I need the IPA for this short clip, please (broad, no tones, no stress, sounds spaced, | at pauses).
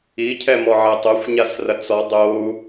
i cʰ ɛ m ɔ ʕ ɛ tˤ o xʷ ɲ a s r ɐ t͡s ɔ dˤ o u̯